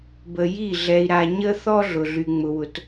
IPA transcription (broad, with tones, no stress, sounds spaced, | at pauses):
b ə˨ j i˦˨ ɮ ɛ˨ i̯ ɾ a˨ ɲ ə˦ θ ɔ˦ ɮ ʊ˨ ɮ y˨ ŋ͡m ʊ˨ w ʊ˨ t